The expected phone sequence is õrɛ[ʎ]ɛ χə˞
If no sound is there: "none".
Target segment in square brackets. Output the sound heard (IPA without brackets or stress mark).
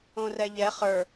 ʎ